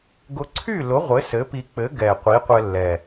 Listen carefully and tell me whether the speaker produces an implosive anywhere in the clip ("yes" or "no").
no